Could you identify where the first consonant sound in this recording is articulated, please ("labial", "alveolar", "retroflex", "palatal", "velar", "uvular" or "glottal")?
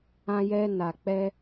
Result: palatal